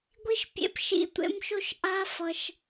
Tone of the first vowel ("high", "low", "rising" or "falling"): high